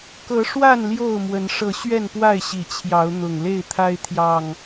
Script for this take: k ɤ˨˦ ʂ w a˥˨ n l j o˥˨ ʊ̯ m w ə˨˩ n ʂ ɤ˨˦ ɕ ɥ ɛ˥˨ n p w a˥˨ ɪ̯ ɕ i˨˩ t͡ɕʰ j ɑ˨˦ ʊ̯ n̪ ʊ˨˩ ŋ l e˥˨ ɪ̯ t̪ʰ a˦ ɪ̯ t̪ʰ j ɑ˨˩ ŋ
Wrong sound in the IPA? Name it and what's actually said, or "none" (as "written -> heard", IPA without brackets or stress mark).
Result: ə˨˩ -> ə˨˦